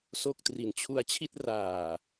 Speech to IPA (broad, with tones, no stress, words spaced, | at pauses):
so˥˩k̚ tri˨˩nt͡ɕʰu˧a̯t͡ɕʰi˥˩t̚ raː˨˩